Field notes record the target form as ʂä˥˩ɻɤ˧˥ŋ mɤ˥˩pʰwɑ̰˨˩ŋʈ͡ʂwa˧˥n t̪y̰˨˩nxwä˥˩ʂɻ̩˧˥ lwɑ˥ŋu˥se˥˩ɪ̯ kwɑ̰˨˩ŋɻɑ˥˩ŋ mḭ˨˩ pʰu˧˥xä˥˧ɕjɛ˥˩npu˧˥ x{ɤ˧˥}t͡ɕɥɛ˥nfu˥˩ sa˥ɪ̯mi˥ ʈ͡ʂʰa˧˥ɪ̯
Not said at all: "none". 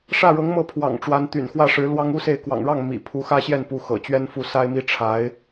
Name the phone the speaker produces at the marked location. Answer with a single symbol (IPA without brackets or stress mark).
ɤ̰˨˩